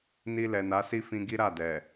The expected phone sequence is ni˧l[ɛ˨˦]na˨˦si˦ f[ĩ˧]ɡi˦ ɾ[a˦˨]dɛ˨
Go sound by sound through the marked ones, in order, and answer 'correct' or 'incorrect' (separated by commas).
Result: incorrect, correct, correct